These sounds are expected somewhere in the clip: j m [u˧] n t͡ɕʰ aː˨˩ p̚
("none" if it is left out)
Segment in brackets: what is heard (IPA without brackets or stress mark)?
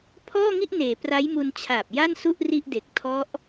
u˧